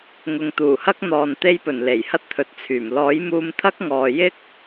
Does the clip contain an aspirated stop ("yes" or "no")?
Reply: yes